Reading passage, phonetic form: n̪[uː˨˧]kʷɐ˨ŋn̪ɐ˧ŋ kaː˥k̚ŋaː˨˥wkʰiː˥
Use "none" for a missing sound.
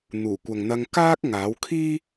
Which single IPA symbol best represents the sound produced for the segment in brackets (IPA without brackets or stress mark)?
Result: uː˨˩